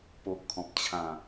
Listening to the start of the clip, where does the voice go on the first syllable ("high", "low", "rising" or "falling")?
low